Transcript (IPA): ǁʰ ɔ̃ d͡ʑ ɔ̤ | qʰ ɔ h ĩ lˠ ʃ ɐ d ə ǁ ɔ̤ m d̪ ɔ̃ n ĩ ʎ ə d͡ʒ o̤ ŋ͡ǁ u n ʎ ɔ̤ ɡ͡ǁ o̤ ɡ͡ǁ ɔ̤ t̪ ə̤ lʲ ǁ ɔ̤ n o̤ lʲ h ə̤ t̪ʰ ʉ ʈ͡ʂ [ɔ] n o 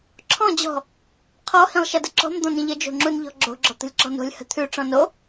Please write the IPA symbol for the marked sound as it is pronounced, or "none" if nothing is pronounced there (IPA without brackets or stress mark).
ɔ̃